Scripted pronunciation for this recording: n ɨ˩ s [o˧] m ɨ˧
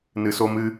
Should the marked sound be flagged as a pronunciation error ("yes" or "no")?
no